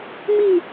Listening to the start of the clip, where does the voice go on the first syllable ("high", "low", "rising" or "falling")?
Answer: falling